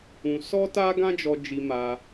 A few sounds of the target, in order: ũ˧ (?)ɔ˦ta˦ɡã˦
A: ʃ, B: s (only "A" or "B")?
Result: B